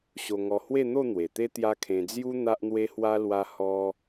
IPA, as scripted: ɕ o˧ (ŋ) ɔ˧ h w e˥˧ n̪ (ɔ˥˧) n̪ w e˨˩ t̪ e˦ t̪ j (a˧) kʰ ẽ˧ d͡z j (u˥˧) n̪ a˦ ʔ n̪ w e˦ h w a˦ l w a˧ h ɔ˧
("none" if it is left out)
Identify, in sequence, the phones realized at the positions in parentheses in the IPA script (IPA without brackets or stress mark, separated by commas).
ŋ, o˥˧, a˦, u˦